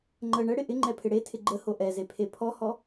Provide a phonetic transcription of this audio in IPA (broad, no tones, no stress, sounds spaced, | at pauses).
ŋ͡ǃ ə ɳ ə ɽ ɪ ʔ ɪ ŋ͡ǃ ɛ pʰ ɪ ɽ e tʰ ɪ ɡ͡ǃ ə h o ʔ ɛ z e pʰ e pʰ ɔ h ɔ